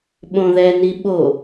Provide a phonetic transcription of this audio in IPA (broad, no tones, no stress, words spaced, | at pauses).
ɓõðɛni ɓo